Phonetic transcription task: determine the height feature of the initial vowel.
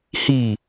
high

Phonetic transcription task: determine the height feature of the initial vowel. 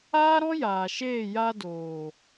low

